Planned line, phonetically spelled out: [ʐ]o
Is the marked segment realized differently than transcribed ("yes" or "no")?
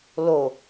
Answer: yes